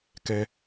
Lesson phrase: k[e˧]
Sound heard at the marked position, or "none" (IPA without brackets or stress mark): ɛ˧